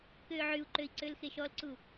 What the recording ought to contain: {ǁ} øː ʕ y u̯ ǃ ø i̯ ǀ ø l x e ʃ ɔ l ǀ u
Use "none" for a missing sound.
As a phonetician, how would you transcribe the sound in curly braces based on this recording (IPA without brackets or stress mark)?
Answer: k